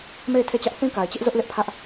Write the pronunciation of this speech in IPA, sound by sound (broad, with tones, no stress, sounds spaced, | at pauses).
m e˦˨ ɪ̯ tʰ e˦˨ t͡ɕ ä˦ ʔ θ ĩ˦ k a˨ ɪ̯ t͡ɕ ɪ˦ ʔ z ʊ˦ ʔ l ɪ˦ ʔ pʰ ä˦ ʔ